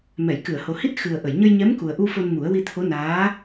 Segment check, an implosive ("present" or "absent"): absent